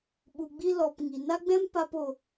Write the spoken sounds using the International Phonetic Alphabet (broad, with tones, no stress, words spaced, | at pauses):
ɓu˨ɡ͡bi˧ lɔ˨p ŋi˨na˦ɡ͡bɛ̃˦m pa˦po˧